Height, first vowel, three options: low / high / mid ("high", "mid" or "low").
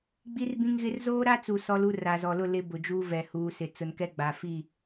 high